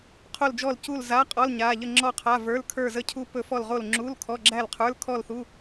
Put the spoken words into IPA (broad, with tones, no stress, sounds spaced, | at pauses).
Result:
qʰ o˥˧ l d͡ʒ ɔ˥˧ l c u˥˧ l z a˧˥˧ qʼ ɔ˧˥˧ l ɲ a˧˥˧ ʎ ə˥˧ ŋ͡ǁ ɔ˥˧ qʰ a˧˥˧ v ə˞˧˥˧ l kʰ ə˞˥˧ z ə˥˧ cʰ u˥˧ p ɵ˥˧ f ɔ˥˧ l ʁ o˥˧ l ŋ͡ǁ u˧˥˧ l kʰ ɔ˧˥˧ ɡ͡ǁ æ˥˧ l qʰ ə˞˧˥˧ l kʰ ɔ˥˧ l θ u˧˥˧